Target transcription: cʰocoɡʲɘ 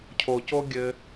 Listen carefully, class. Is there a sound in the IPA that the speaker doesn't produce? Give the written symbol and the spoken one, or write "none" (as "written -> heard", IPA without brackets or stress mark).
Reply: none